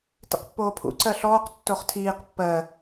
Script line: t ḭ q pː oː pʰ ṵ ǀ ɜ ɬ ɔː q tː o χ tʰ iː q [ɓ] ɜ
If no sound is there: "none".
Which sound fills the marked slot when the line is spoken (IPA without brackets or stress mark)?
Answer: pː